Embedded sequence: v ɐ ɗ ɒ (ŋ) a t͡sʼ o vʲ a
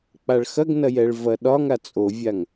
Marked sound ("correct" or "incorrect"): correct